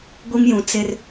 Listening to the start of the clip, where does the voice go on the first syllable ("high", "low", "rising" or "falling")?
high